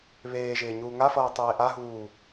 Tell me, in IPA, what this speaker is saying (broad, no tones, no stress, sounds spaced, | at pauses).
β eː ʒ ɪː ɲ uː ŋ a f ʌː tˤ eː ʔ a ɦ uː